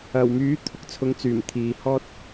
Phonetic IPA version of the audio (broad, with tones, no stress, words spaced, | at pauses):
ɐ˨˩wmyː˨˥ t̪ʰʊ˨k̚t͡sʰʊ˨˧ŋt͡syː˨˩m t̪ʰiː˨hɔː˥t̚